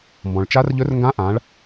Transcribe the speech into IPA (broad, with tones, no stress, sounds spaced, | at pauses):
m b ɔ̃˩ ɭ t͡ʃ a˧˥ r ʎ ɵ˧˥ r ŋ ɡ ã˧˥ ʔ ã˩˧ ɭ